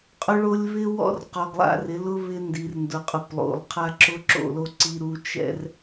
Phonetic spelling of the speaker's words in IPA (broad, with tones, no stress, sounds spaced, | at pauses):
qʼ ʊ˦ ɭ o˦ lʲ β ɪ˦ w ɔ̰˦ r q ɔ˨ ɡ lˠ a̰˦ r ɪ˨˦ l ʊ˦ β ɪ˦ n d i˨ r n d ʊ˨ qʼ ʊ˨ p lˠ o̰˨ lˠ qʰ a˦ ǁ ʊ˦ ǁ o̰˦˨ l o˦ ǀ i˦ ɾ u˦ t͡ʃ ɛ̰˦ r